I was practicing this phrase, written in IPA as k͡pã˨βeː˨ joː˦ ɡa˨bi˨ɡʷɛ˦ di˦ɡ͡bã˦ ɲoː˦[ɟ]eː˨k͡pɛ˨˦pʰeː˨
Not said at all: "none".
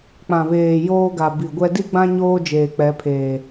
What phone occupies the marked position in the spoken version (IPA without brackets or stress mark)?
d͡ʒ